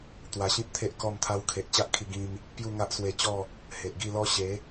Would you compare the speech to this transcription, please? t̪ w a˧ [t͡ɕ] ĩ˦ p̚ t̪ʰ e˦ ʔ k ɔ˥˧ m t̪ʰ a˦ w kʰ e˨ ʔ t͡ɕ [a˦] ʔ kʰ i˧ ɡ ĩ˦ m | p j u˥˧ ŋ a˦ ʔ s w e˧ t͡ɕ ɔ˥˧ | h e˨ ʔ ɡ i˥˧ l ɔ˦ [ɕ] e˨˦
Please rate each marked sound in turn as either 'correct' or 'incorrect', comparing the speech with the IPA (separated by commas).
incorrect, correct, correct